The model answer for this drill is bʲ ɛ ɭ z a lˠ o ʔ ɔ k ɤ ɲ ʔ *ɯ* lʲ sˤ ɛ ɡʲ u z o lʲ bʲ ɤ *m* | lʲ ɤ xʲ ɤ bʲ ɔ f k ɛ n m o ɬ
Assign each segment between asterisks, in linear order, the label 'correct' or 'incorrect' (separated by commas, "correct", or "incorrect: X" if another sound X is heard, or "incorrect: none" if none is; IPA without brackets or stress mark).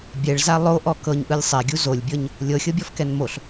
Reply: correct, incorrect: ɲ